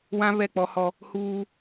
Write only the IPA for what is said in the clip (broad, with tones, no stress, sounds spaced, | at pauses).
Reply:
w ã˦ β ɛ˦˨ k͡p ɔ˦ h ɔ˦ | h uː˦